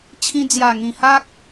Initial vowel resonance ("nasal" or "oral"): nasal